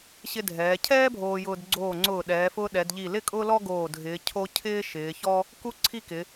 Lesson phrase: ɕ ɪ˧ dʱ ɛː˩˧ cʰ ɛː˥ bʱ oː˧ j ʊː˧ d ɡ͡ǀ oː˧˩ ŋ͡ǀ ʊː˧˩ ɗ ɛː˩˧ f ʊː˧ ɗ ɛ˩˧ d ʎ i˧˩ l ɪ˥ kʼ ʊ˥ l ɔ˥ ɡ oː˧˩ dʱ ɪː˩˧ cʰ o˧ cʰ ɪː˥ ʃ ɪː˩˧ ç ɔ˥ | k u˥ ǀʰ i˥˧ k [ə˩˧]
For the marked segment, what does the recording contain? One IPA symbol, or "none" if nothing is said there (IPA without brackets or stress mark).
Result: ɪ˩˧